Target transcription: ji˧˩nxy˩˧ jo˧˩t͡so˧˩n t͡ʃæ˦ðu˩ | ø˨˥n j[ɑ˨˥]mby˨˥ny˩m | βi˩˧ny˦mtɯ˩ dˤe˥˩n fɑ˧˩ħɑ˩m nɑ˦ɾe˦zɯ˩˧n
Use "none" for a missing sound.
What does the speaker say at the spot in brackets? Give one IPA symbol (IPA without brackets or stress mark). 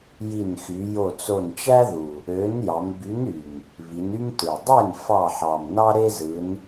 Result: ɑ˩˧